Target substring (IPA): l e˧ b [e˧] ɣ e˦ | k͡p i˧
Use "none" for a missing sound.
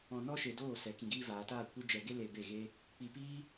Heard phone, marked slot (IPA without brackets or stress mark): e˦˨